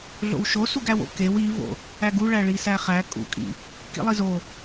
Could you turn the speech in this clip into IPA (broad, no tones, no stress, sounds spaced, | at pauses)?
ɮ o̰ w ʃ o s u ɡ æ w o̰ k e w i v o̰ | æ ɡ u ɭ æ ɭ i s æ χ æ kʼ ṵ kʼ ḭ | k ḭ lˠ i z o